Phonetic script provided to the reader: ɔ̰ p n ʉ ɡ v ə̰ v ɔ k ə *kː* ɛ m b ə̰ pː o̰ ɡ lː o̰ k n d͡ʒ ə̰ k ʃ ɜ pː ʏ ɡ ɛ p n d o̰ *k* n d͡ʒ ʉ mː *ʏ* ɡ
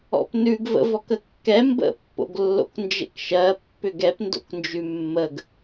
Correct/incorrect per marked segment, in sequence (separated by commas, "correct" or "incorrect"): correct, correct, incorrect